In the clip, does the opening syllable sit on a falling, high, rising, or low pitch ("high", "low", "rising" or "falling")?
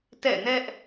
falling